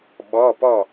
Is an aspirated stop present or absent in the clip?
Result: absent